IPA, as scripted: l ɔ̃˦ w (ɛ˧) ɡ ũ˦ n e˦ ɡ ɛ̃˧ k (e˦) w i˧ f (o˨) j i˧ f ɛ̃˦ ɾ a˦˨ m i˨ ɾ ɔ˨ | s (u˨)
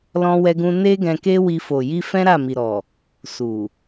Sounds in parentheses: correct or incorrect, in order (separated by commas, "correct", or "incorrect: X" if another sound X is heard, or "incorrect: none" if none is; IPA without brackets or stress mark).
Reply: incorrect: ɛ˦, correct, correct, correct